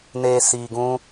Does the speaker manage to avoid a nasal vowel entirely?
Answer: no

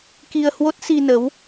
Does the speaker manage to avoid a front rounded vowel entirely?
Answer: yes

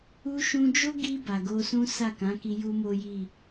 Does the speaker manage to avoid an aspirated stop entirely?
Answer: yes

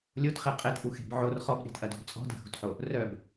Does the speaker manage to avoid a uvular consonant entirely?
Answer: no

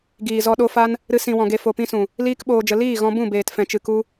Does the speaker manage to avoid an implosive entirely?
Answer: no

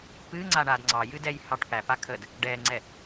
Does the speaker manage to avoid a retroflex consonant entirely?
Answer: no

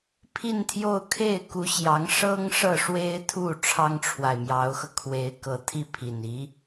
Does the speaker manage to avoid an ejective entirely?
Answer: yes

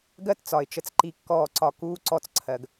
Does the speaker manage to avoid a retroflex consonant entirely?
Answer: yes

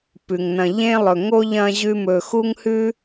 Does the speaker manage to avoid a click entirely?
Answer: yes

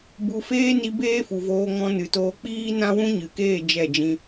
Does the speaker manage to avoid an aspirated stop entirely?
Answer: yes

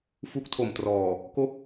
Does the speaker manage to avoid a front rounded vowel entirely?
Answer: yes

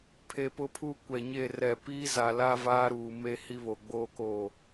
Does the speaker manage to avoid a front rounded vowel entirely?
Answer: yes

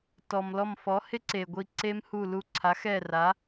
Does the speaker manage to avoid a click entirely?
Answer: no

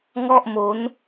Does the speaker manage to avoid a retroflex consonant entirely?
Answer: yes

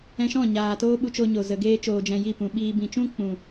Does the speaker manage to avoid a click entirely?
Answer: yes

